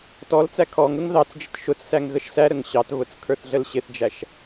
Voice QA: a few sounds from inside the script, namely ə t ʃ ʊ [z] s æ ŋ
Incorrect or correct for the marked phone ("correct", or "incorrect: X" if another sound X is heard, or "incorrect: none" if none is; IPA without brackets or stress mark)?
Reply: incorrect: t͡s